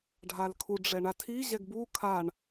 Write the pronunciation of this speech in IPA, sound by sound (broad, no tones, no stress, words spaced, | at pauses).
ɖʱalkʰu ɖ͡ʐɛɳatʰi ʑɛɡbu kʰaɳ